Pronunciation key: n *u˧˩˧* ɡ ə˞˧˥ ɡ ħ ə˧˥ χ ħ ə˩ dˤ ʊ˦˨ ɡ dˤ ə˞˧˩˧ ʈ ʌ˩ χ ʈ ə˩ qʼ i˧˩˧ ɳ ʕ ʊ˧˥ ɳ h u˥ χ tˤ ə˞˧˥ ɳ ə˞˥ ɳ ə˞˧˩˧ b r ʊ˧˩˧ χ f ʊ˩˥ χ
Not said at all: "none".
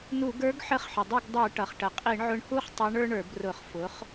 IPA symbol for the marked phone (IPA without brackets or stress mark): u˧˩˧